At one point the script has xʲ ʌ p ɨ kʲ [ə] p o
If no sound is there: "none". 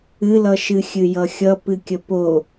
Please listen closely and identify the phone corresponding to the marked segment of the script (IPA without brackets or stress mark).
ə